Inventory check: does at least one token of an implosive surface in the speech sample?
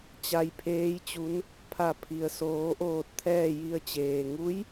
no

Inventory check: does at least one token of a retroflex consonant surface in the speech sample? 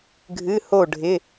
yes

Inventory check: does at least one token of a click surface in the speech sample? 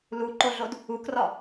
yes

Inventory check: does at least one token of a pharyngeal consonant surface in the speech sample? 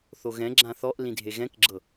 no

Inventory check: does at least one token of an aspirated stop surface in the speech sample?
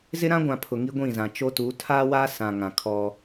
yes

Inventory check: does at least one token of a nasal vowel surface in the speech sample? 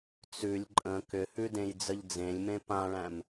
yes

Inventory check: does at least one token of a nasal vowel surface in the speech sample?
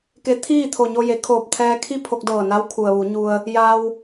no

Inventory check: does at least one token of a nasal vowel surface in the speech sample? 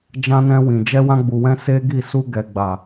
yes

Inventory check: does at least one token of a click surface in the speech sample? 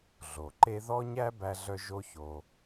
yes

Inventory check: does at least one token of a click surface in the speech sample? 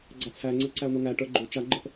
yes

